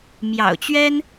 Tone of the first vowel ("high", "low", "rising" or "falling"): low